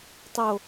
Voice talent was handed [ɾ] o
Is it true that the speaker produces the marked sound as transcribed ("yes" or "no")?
no